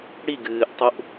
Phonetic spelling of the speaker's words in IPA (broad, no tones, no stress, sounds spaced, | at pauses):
ɽ i ɡ ɨː ʔ tˤ u ʔ